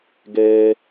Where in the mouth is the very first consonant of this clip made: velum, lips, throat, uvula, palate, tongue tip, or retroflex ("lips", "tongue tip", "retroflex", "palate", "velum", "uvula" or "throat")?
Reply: velum